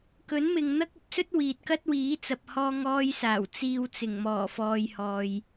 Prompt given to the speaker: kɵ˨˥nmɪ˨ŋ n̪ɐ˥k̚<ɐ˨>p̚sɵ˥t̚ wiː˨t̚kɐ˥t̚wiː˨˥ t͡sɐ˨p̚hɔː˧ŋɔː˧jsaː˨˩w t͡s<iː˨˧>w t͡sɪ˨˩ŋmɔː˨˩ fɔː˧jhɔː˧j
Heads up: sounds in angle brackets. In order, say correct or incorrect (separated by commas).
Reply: incorrect, incorrect